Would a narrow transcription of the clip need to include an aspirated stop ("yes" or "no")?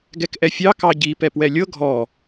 no